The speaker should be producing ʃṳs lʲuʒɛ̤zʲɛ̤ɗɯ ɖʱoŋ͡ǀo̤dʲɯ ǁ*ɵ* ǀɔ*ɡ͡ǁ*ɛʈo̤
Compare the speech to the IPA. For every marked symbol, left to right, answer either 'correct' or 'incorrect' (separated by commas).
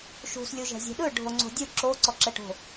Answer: incorrect, incorrect